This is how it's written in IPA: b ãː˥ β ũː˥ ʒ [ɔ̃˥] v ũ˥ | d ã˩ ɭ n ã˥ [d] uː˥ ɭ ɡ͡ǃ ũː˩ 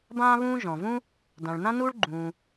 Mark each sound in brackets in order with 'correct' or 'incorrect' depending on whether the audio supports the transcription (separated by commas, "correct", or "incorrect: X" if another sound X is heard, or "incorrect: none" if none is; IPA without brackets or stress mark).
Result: incorrect: ɔ̃˩, incorrect: n